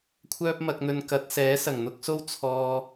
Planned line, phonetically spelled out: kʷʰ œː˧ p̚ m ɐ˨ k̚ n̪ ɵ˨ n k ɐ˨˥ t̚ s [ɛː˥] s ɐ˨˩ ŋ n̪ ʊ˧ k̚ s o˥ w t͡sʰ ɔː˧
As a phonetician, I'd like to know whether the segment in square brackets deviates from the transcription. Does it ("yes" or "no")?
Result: yes